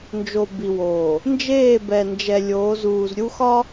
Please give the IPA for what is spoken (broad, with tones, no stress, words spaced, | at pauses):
nd͡ʒo˨bi˨woː˨ | nd͡ʒeː˦˨bɛ˨nd͡ʒɛ˨ lʲoː˨˦zuː˨zɾʲu˦xɒ˦